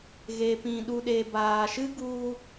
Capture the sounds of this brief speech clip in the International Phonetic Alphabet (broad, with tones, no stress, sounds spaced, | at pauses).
ɣ e˨ p ĩ˨ ɗ u˨ ɗ e˨ b aː˨ ʃ ɨ˦ ɡ u˧